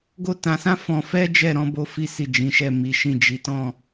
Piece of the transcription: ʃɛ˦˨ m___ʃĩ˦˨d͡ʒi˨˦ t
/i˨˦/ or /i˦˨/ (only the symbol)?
i˨˦